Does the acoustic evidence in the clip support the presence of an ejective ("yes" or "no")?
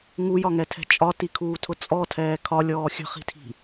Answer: yes